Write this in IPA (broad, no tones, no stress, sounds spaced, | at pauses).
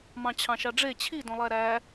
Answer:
m ɑ̃ t͡ɕʰ ɑ̃ ʃ ɑ ɖ͡ʐ e t͡ɕʰ i d õ lˠ æ ɾ æ